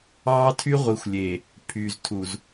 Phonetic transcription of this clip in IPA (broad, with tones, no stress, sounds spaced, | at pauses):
ɑː˦ tʰ y˦ ʁʷ i˨˦ xʷ lʲ e˨ | pʰ y˨ z tʰ u˨ z